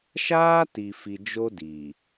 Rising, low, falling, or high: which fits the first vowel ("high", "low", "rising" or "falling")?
high